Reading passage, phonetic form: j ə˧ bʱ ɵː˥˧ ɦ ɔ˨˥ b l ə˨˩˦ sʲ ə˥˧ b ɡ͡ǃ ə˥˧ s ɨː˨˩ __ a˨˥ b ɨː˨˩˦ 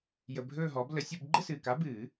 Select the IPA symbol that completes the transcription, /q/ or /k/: k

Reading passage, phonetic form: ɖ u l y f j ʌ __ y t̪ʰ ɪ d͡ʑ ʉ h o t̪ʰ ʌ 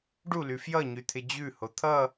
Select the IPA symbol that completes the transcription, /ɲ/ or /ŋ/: ɲ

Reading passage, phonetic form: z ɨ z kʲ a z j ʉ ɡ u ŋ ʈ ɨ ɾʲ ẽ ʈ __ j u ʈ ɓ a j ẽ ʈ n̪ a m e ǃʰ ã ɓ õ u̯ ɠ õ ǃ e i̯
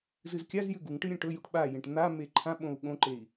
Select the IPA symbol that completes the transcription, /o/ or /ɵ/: ɵ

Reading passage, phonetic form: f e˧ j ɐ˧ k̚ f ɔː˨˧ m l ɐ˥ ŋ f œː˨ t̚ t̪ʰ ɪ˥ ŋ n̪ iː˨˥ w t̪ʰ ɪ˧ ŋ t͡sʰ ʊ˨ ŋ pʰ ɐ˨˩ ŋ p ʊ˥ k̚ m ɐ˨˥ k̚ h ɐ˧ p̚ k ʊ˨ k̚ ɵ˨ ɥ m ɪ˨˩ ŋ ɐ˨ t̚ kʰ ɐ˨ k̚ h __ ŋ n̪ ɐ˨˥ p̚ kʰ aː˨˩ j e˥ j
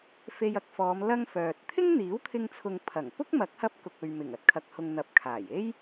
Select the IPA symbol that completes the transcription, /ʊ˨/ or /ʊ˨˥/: ʊ˨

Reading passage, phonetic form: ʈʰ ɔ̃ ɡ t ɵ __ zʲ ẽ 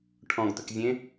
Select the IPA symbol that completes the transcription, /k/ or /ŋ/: k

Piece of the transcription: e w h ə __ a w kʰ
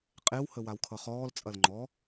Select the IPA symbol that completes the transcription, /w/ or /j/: w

